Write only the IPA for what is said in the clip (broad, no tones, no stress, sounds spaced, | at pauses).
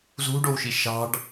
z ṳ ɖ o w ʃ i ʃ ɑ̤ ɖ